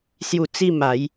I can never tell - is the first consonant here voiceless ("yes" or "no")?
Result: yes